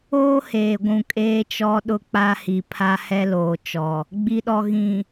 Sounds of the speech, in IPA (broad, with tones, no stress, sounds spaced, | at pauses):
oː˦ h eː˨ ɡʷ ũ˨ kʼ eː˦ t͡ʃ ɔ˦ ɗ ʊ˦ k͡p a˦ h i˨ pʰ a˦ h ɛ˦ l oː˨ t͡ʃ ɔ˨ | ɡ͡b i˨ ɗ ɔ˨ ɣ ĩ˨